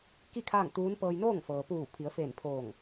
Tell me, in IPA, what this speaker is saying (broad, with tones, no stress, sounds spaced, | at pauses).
k i˥˨ kʰ aː˥˨ ŋ t̪ uː˧˥ n p ɤː˧ j n oː˥˨ ŋ f ɤː˩ p uː˧˩ pʰ i˩˧ ə̯ f eː˧˩ n pʰ oː˧˩ ŋ